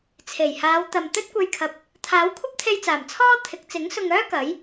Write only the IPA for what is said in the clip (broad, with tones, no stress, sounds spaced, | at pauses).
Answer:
t͡sʰ e˨˩ j h aː˨˧ w t̪ ɐ˨ m t̪ ɵ˥ t̚ kʷ e˧ j kʰ ɐ˨˥ p̚ | t̪ʰ aː˨˥ w kʷʰ ɐ˥ p̚ t̪ʰ e˧ j t͡s aː˨˩ m t͡sʰ ɔː˥ t̪ʰ ɪ˨˥ k̚ t͡s ɪ˨˥ ŋ s ʊ˧ ŋ œː˥ k ɐ˨˥ j